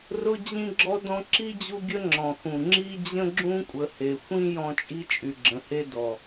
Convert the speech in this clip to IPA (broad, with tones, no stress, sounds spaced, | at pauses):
r ʊ˦ d͡ʑ ĩ˥ ɡ͡ǁ ɔ˥ d ɔ̃˥ ǁ i˥ d͡ʑ u˦ ɡʲ ə˦ ŋ͡ǁ ɔ̃˩ x ũ˩ ŋ͡ǁ i˥ d͡ʑ ə̃˥ ɡ͡ǁ ũ˥ kʷʼ ə˨ h e˩ xʷ ĩ˥ j ɔ̃˦ t͡ʃʼ i˥ t͡ʃʼ y˩ ɡ͡ǁ ə̃˩ h e˥ d ɔ˩